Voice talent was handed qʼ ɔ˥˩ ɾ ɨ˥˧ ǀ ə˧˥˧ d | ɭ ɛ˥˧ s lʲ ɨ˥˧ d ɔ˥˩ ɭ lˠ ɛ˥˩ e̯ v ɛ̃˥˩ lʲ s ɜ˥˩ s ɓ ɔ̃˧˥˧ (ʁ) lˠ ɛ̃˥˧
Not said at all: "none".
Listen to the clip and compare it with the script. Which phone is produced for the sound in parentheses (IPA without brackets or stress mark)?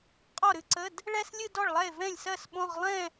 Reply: ʁ